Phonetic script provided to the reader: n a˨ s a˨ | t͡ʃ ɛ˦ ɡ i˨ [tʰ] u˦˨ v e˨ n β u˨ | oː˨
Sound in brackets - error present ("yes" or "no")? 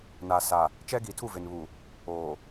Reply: no